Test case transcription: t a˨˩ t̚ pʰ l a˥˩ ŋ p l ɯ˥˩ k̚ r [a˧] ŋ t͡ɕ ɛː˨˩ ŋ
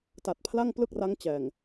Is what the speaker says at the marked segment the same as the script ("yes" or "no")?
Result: no